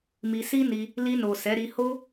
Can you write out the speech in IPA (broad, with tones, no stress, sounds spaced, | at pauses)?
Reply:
m i˧ s i˦ n i˧ | l i˧ n o˨ s ɛ˨˦ ɾ i˧ h o˦